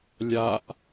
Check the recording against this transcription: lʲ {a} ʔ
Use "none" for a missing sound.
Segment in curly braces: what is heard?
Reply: a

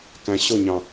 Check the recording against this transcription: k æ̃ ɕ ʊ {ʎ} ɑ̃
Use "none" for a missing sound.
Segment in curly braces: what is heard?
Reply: ɲ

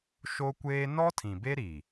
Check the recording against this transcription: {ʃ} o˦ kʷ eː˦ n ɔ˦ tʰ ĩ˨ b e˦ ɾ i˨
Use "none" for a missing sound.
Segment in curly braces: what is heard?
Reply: ʃ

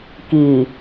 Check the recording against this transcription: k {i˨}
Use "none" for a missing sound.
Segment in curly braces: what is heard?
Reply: i˨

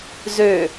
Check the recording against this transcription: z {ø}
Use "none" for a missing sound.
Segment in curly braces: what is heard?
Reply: ø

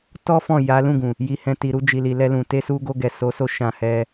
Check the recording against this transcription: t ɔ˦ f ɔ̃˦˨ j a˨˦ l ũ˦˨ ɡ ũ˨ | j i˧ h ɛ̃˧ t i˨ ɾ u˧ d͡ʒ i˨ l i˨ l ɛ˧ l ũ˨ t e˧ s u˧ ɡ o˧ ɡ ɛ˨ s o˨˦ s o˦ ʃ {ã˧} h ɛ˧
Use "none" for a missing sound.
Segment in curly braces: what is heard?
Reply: ã˧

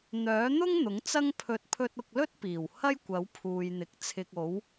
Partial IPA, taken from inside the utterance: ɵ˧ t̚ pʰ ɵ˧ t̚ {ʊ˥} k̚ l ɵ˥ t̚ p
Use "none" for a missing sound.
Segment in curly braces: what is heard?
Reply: ʊ˧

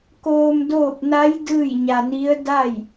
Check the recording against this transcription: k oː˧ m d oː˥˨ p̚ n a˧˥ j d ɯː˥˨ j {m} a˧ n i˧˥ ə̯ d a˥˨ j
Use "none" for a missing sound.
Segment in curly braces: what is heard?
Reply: ɲ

